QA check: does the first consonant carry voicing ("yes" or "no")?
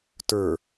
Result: no